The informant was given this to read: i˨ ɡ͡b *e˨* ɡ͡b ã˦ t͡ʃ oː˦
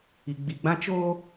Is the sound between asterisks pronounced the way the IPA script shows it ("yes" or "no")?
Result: no